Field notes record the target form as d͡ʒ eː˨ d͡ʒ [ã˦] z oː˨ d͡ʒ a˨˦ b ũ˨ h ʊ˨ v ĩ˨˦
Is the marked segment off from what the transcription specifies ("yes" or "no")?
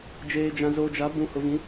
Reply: yes